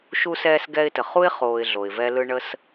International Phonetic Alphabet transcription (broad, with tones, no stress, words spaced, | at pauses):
ʃu˧sɛː˧s ɡɛ˧ɪ̯tə˨χu˦ɪ̯ χoː˨ɪ̯ ɮo˨ɪ̯vɛ˦lɯ˦ ɳə˦s